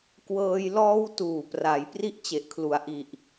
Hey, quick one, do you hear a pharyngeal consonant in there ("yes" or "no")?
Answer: no